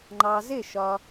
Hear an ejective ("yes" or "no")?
no